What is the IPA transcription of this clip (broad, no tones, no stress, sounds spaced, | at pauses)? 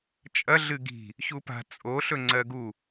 t͡ʃʼ ɐ ɮ ɨ ɡ i̤ | ç u p a̤ t͡sʼ o ɬ ɵ ŋ͡ǀ ɜ ɡ u